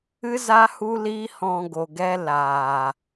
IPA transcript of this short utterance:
ɨ˦ z a˦ h u˦ l iː˦ h ɔ̃˧ ɡ o˨ ɡ ɛ˦ l aː˨

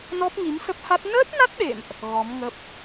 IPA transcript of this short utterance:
n ɔ˦˥ p̚ ŋ i˨˦ m s ə˦˥ p̚ h a˦˥ t̚ n əː˦˥ t̚ n a˦˥ t̚ ɗ ḛ˧˨ m ʔ | ɣ ɔ˨˦ m ŋ ə˦˥ p̚

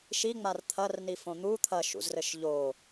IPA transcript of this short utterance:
ʃ i ŋ͡m a r t̪ʰ ɐ r n i f õ n̪ u t̪ʰ ɐ ʃ ṵ z r ɘ ʃ ʎ o

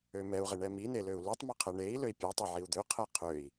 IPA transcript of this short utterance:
ø m ɛ u̯ ʁ e ɳ ɛ m i n e l ø u̯ l u tˤ m ø qʰ ɛ ɳ e i̯ l ø i̯ pʲ ɔ tˤ ø ʕ i u̯ d̪ ø qʰ ɛ qʰ ø i̯

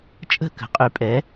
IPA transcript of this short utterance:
t͡ʃʼ ə̤˥˨ k ə̤˩˥ qʼ y˩˥ pʼ ɛ˩˥

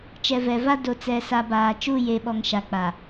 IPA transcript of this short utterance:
t͡ʃ ɛ˨ v ɛ˨ v a˦ d o˨ t͡s ɛ˨ s a˨ b aː˨ t͡ʃ u˦˨ j e˨ ɓ ɔ˨ ŋ ʃ a˨ k͡p a˨

